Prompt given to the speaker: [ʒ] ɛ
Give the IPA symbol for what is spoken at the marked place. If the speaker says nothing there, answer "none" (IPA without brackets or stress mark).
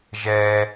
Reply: ʒ